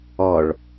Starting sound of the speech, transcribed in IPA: ɔ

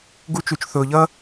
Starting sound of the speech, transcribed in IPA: ɡ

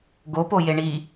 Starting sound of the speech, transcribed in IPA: ɡ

